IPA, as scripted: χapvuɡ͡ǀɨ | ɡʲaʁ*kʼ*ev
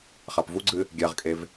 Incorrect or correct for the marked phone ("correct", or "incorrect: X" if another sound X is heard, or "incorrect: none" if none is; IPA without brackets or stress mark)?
correct